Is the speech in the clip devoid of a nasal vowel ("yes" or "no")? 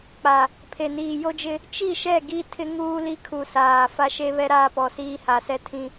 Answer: no